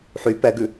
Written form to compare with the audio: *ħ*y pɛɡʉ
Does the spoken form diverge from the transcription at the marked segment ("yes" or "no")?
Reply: no